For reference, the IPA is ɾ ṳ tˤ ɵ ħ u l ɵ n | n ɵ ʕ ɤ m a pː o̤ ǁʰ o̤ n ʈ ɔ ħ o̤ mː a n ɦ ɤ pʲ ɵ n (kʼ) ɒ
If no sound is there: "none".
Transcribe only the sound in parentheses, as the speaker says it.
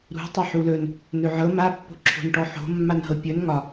ŋ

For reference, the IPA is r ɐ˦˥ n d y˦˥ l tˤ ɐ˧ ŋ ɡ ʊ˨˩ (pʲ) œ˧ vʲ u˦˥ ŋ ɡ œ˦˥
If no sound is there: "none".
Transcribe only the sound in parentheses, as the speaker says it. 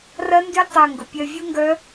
pʲ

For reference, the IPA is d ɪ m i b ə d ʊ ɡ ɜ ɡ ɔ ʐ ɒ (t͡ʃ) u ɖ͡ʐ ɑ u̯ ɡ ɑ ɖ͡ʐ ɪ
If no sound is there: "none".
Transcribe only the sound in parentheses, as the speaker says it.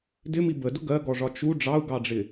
t͡ʃ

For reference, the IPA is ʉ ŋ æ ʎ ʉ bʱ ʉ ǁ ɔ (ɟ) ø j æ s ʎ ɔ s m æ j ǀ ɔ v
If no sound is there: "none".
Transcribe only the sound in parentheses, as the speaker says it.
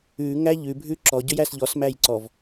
ɟ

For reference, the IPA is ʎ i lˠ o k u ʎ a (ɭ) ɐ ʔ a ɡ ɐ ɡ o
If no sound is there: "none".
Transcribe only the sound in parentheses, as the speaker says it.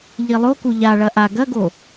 ɭ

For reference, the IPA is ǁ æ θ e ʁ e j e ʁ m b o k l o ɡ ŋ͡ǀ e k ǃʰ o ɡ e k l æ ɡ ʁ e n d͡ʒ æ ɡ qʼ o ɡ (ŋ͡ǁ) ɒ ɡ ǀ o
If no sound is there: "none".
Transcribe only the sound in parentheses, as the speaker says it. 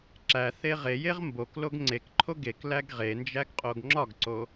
ŋ͡ǁ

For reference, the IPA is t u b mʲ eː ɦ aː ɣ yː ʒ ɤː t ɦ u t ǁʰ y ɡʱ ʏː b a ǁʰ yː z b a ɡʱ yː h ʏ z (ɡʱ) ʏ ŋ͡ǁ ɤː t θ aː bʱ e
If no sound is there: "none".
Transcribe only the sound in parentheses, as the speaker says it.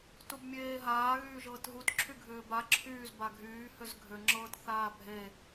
ɡʱ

